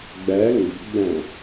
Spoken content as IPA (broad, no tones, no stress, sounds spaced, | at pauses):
ɡ͡b æ ŋ ɡ ə̤ ɡ͡b æ̃